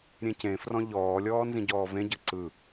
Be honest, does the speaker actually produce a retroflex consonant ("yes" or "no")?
no